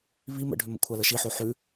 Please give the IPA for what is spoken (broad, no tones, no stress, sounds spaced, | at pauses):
β i m ə̰ ɖʱ ʏ m ə̰ kʷʰ a l ə ʃ i ħ o ħ ʉ